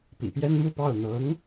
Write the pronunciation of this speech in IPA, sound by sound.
p ḭ˨˩ p j ɛ˥ n m u˥˧ p ɑ˥˩ ʊ̯ n̪ ɤ˧˥ ŋ

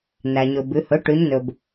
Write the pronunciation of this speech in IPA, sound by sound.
n æ˩ ɲ ɵ˩ b ʉ˩˧ h ɵ˩˥ ʈ ʉ˩˧ ɲ n ɵ˩ b

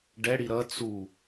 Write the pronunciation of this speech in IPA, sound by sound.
ɖ ɛ ɽ i ɾ ʌ t͡s u

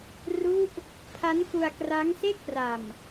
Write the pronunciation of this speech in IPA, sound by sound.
r u˦˥ ʔ | pʰ a˦˥ n k u˧ a̯ k r a˦˥ ŋ s e˥˩ k̚ p r a˨˩ m

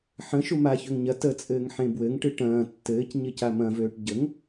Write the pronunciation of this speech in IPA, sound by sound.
ħ ə̃ ʃ u m a ç ø ŋ ɲ ɐ t ə t͡sʼ ɘː ŋ ħ ẽ b w ɘ ŋ ʈ ɨ ʈ ɐ̃ː tː ɘː c ɲ ɘ c a m ɐ̃ v øː ʈ ɟ ə ŋ

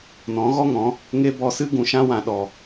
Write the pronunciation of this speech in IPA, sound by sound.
n ɔ̃˨˦ ɣ ɔ˦ ŋ ɔ̃˨˦ | ŋ e˦ b ɔ˧ s ɨ˦ ɡ ũ˨ ʃ ã˧ w ã˨ ɗ ɔ˨

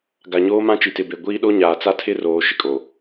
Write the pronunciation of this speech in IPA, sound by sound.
ɡ a˨ ɲ oː˦ m ã˦ t͡ʃ i˨ t ɪ˨ b e˨ ɡʷ iː˦ ɗ o˦ ɲ aː˨ t͡s a˦ tʰ ɪ˦ r oː˨ ʃ ɪ˨ kʼ oː˨

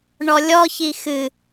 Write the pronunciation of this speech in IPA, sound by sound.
ɳ ɔ lʲ ɔ ç i x ɨ

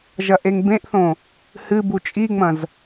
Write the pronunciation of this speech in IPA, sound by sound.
ʒ ɐ ʔ e ŋ b ẽ ʔ θ õ | h ɨ b u t͡ʃʼ i ŋ͡m ɐ̃ z

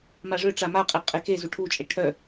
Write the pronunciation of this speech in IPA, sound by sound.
m a ʐ ø ʈ͡ʂ a m a qʼ e qʼ e k e z u ʈʰ u t͡ʃʼ e ʈʰ œ

